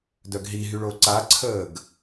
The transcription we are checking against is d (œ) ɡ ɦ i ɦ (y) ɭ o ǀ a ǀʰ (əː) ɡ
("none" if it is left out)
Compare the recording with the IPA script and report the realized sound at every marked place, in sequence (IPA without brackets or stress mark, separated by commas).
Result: œ, y, əː